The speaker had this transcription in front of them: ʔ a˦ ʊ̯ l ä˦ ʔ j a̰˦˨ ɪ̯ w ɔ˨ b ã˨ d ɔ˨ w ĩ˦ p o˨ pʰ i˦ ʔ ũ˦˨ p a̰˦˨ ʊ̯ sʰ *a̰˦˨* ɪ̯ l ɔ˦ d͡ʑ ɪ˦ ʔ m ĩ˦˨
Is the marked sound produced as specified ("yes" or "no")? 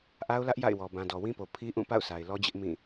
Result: no